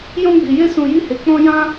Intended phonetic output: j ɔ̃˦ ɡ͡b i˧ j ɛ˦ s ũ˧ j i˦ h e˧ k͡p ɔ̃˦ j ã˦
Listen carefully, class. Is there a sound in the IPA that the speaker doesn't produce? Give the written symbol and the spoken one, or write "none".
ɛ˦ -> e˦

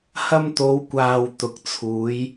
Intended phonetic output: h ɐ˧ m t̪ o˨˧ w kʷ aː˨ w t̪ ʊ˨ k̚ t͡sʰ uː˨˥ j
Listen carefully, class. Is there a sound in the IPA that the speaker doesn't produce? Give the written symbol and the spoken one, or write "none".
none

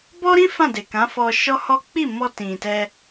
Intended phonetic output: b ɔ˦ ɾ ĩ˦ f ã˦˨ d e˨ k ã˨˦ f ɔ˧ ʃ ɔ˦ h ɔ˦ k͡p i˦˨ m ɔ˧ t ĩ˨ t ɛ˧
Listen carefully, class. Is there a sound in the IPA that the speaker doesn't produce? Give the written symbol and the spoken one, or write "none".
none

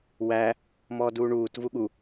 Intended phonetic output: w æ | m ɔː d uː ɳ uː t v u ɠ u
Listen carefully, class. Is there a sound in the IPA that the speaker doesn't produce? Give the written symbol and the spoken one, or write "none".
none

